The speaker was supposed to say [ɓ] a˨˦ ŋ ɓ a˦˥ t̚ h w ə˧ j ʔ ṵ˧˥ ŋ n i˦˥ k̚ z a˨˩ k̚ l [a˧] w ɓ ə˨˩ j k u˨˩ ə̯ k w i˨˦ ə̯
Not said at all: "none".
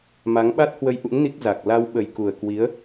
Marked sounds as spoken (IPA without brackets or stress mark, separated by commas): m, a˧